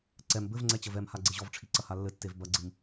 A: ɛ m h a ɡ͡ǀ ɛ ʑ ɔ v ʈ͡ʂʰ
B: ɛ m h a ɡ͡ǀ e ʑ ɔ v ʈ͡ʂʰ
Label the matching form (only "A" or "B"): B